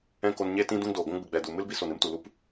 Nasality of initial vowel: nasal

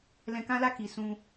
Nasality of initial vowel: nasal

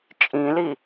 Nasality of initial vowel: nasal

